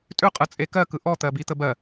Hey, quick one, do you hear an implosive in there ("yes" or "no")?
no